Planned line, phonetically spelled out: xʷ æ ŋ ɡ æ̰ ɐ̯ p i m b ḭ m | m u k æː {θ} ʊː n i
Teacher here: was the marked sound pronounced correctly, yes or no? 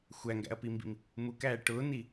no